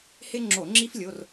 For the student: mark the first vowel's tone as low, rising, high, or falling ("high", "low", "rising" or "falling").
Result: high